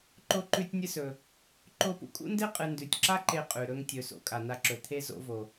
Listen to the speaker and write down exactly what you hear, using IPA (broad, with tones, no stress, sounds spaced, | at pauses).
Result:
ǃ o˧ ǃ ʉ˧ tʲ nʲ ɨ˧ s ɵ˩ | ǃ o˧ p ṵ˧ kʼ ṵ˥ n d e˥ qʼ ɨ˧ n d ʉ˩ tʲ ǁ a˥ ǃ e˧ qʼ ʉ˩ ɾ ɵ˧ ŋ tʲ ɵ˩ s o̰˧ kʼ a˩ n a˧ ǁ ɵ˩ t̪ʰ e˥ z o̰˧ v o˩